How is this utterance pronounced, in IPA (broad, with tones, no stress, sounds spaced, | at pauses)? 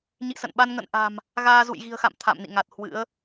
ɲ ḭ˧˨ s ə̰˧˨ n ɓ a˧ n ŋ ə̰˧˨ n ʔ a̤˨˩ m | ɣ aː˧ z ṵ˧˨ j ɣ i̤˨˩ ə̯ x a̰˧˨ m t̪ʰ a̰˧˨ m n ḭ˧˨ ŋ a˨˩ t̚ h w ɨ̰˧˥ ə̯